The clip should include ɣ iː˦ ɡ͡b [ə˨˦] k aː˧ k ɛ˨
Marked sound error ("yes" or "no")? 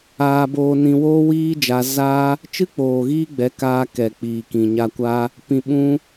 yes